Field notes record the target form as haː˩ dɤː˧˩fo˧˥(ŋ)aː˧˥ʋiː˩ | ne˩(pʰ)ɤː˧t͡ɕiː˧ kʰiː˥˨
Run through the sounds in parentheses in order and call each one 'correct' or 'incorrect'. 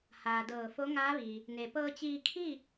correct, incorrect

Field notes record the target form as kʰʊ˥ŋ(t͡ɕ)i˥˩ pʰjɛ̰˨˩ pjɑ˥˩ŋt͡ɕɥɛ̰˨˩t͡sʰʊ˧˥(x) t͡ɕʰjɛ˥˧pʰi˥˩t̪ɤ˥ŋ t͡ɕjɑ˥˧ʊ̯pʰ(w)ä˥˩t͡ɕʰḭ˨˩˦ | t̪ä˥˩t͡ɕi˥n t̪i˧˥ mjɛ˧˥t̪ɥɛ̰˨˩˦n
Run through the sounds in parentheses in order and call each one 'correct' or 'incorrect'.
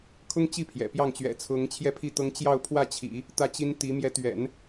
correct, incorrect, correct

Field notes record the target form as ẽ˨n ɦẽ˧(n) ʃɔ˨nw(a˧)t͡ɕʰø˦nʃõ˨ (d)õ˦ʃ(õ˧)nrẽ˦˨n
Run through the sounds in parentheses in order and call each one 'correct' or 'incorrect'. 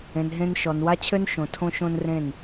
correct, incorrect, incorrect, incorrect

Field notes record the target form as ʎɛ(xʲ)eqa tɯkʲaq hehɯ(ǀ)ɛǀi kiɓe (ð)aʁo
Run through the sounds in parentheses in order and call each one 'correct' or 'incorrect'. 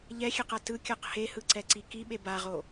correct, correct, incorrect

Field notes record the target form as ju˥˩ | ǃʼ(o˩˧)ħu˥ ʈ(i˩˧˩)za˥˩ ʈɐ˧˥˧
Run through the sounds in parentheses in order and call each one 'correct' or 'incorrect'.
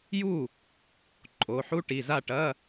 incorrect, correct

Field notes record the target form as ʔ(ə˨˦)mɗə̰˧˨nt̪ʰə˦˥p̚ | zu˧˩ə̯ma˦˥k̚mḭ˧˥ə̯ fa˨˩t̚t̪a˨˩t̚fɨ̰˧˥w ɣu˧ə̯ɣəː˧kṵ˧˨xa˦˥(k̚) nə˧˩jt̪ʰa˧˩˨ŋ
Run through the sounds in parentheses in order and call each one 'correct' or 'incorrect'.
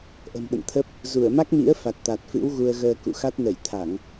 incorrect, incorrect

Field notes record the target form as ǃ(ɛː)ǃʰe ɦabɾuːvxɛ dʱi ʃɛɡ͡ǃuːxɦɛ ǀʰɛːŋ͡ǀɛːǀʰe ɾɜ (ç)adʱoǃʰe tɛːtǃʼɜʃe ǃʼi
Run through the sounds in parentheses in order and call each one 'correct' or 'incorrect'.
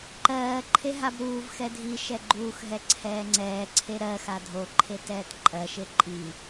incorrect, incorrect

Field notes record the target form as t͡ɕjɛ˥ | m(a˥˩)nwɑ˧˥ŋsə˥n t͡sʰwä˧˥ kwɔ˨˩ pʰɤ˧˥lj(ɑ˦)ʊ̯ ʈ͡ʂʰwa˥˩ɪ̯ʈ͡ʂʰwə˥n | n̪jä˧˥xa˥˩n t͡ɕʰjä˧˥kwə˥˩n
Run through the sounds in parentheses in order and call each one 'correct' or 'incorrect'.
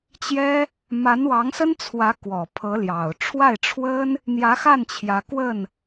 incorrect, incorrect

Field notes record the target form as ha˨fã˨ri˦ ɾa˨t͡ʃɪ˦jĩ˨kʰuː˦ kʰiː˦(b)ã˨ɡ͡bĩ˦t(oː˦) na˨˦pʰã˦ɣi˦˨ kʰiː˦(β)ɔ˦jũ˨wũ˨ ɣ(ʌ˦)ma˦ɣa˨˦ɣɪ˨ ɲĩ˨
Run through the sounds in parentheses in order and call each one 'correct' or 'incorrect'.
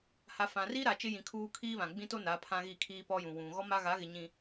incorrect, incorrect, incorrect, incorrect

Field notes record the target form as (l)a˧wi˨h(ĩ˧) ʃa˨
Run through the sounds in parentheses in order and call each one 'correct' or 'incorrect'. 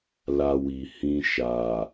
correct, correct

